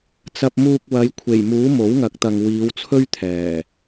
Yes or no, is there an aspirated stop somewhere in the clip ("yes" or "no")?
yes